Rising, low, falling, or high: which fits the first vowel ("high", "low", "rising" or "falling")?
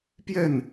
falling